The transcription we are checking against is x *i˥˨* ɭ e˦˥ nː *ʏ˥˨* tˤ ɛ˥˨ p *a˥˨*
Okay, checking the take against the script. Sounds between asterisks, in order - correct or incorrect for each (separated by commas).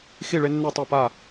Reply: correct, incorrect, correct